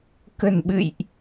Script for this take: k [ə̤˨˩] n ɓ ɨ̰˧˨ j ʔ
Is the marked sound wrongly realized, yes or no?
no